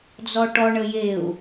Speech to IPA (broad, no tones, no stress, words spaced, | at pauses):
d͡zɔʈɔ ɳəjeu̯